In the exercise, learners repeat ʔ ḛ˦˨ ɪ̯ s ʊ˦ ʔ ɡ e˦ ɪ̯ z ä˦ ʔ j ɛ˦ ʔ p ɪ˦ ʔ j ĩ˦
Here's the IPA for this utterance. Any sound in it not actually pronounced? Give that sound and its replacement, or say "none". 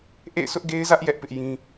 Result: none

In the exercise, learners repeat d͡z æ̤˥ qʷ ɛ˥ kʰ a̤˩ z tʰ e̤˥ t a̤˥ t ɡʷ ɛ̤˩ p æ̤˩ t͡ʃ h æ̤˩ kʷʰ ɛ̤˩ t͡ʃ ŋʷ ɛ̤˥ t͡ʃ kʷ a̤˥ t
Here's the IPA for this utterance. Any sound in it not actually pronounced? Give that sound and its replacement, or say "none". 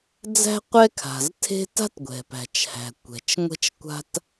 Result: kʷʰ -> kʷ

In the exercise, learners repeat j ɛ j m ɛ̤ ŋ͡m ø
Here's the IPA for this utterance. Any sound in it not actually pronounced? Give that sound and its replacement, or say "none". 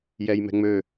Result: none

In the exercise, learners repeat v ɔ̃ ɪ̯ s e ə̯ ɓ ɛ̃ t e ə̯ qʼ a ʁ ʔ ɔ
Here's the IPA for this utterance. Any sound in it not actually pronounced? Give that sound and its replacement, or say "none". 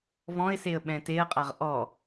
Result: none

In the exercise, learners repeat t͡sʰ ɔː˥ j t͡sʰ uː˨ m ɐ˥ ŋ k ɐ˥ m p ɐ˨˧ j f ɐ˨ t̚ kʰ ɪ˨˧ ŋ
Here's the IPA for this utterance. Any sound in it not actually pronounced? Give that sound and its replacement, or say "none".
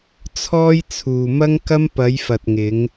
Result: kʰ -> ŋ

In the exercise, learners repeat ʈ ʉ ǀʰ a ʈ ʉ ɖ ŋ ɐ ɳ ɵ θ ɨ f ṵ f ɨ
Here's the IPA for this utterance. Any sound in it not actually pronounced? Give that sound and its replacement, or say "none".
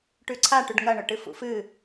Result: θ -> ʈ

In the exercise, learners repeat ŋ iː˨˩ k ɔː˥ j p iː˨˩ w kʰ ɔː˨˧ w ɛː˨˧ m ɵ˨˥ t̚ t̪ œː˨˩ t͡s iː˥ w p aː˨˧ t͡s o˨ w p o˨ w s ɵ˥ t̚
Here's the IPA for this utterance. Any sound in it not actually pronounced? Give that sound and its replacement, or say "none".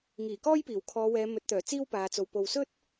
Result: none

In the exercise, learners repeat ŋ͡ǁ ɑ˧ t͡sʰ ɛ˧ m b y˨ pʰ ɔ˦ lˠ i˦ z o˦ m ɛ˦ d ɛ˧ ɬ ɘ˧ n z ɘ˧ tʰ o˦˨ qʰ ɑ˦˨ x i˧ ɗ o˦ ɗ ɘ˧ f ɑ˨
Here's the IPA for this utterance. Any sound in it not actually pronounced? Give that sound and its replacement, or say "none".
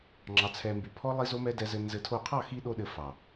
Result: ɬ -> z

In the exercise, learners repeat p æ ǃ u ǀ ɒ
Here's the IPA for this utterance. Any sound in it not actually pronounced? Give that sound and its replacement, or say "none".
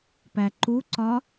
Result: none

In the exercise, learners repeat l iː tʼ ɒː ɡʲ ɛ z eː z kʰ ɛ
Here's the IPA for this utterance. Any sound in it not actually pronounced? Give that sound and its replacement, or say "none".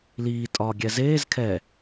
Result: none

